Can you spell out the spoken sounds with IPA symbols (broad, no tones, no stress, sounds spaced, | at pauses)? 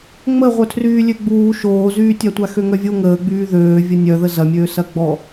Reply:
ŋ͡m ə ʁʷ œ tʰ r yː lʲ ø ɡ͡b uː ʃ oː z yː tʲ a tʷ a x ø ŋ œ vʲ o ŋ əː ɡ͡b yː ð øː vʲ ɐ nʲ œ ð ə z ɐ mʲ øː s ɐ ɡ͡b ɔ